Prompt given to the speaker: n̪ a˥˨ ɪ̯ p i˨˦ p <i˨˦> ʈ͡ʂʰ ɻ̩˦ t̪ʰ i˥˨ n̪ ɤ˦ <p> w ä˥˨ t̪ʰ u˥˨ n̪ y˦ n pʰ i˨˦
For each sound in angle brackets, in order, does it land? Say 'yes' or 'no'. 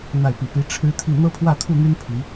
yes, no

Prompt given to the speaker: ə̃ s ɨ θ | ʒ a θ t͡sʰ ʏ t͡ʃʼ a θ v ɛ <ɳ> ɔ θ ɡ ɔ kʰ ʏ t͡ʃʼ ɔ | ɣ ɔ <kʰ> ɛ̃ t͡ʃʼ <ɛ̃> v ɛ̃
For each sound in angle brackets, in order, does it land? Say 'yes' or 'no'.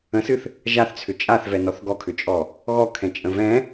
no, yes, no

